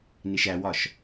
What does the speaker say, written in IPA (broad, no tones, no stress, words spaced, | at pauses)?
niʃæwɒʃ